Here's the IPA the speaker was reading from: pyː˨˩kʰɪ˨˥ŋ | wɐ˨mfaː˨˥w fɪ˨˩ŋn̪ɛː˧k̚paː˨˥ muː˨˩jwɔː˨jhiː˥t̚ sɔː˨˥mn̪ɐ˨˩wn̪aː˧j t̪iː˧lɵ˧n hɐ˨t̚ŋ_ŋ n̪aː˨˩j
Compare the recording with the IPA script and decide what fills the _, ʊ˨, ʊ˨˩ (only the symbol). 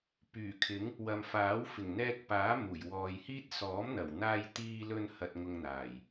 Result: ʊ˨